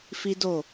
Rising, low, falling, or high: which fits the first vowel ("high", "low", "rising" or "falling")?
high